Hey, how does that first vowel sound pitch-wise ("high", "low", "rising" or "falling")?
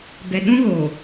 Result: low